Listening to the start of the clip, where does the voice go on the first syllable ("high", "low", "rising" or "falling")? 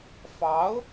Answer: rising